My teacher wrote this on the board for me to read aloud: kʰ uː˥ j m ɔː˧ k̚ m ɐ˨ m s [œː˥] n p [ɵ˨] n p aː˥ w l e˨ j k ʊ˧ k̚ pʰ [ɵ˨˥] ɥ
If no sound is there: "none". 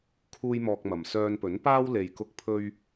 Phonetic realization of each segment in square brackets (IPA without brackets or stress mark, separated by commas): œː˧, ɵ˨˥, ɵ˧